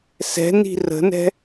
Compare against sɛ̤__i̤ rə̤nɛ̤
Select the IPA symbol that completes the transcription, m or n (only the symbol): n